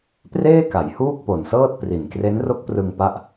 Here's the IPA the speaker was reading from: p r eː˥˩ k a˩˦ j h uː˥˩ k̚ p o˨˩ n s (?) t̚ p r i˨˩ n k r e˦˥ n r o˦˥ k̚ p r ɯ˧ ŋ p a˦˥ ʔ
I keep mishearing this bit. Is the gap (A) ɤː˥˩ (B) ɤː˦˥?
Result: A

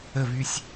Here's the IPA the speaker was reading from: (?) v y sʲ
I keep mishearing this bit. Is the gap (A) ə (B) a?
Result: A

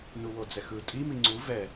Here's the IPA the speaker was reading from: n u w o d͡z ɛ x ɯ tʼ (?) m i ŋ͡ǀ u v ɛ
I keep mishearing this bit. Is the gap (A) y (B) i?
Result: B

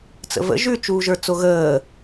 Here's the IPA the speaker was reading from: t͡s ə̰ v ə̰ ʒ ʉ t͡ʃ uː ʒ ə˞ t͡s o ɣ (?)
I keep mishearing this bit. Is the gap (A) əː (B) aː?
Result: A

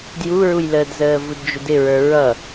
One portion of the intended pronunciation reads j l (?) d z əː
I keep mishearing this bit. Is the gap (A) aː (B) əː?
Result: B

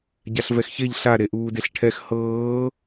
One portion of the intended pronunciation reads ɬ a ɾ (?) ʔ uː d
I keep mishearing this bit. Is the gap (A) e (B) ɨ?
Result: A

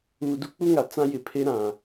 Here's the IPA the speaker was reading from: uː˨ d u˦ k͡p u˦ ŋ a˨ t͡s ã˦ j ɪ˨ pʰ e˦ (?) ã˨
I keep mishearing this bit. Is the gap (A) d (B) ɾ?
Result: B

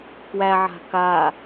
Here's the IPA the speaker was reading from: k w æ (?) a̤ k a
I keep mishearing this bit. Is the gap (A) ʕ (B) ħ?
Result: A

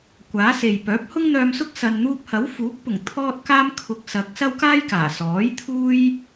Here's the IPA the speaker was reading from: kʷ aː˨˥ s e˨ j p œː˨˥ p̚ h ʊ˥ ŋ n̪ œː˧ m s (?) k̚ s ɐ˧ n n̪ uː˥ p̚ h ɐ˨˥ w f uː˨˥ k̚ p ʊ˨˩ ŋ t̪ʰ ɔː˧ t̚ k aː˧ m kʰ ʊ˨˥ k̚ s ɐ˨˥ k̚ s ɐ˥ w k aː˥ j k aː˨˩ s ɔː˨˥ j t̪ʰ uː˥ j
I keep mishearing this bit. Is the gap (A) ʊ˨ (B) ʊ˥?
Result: B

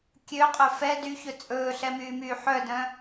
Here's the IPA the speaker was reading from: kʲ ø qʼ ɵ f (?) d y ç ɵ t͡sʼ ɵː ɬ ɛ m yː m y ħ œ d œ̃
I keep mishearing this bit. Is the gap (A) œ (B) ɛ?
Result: B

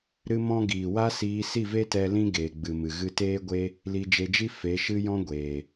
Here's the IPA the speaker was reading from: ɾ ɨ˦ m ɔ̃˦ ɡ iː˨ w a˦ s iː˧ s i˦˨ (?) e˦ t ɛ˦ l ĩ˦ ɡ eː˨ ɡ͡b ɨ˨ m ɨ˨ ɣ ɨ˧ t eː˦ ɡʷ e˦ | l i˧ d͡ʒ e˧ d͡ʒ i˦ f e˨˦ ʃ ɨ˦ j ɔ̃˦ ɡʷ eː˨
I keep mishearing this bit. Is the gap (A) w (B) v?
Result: B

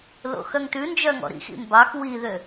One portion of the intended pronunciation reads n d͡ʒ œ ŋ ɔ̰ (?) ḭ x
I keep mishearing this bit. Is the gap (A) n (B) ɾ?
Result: B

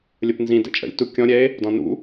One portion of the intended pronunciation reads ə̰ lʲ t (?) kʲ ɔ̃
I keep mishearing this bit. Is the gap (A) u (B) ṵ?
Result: A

